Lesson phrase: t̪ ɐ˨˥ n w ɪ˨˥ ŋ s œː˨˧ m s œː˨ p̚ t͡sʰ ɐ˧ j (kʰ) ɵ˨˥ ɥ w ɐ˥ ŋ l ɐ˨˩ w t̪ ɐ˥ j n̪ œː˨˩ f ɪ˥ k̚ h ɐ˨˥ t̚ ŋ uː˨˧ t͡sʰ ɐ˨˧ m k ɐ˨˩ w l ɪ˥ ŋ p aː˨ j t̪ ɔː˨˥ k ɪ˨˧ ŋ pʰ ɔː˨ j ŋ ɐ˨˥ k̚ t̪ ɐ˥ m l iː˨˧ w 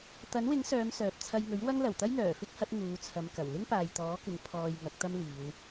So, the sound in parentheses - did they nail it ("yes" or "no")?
no